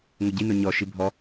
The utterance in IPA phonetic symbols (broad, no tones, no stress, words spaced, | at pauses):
ŋoɟino ɲɔʃi bʱɔ